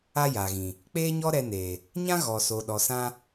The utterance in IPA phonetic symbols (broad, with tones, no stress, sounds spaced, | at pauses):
a˦ j a˨ ɣ ĩ˨ | k͡p eː˦ ɲ ɔ˦ ɾ ɛ˧ n eː˨ | ɲ ã˦ ɣ ɔ˨ s o˨ ɗ ɔ˨ s ã˧